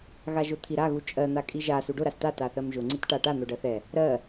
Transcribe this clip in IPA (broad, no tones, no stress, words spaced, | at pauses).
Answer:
ɣaʒʊt̪ʰiɾa ɣut͡ʃʼɜ n̪akʼiʒa suɖʊ ɾasta taθɜmʒʊ ŋ͡ǀitʈaʈa n̪ʊɖɜθɛ | ɾɜ